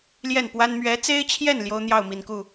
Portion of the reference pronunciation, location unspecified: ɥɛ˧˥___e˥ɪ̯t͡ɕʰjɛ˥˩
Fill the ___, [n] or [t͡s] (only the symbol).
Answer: t͡s